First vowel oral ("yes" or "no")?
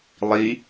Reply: yes